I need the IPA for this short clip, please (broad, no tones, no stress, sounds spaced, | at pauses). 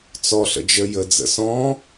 t͡s ɔ ɬ ə̰ d͡ʒ ə j ə d͡z ə̰ s ɔ̃